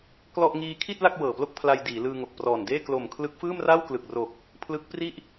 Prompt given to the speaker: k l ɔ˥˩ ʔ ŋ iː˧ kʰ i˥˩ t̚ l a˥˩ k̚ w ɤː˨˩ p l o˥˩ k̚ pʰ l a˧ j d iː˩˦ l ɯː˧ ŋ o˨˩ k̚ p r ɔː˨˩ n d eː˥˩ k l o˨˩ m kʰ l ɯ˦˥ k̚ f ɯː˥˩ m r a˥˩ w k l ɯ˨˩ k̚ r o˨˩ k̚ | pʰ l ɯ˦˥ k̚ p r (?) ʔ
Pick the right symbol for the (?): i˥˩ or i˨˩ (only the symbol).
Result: i˥˩